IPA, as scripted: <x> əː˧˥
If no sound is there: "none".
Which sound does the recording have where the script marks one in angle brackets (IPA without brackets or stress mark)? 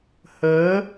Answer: h